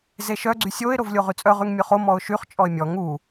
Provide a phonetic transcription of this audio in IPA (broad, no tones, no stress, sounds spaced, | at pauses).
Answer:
z e ʃ œ ɡ͡ǀ y sʲ o ɪ̯ ɾ o v lʲ o ʁ y t͡sʼ œ ʁ y ŋ mʲ ø χ o m ɔ ʊ̯ ʃ y χ t͡ʃʼ ɔ ɪ̯ mʲ ɔ ŋ u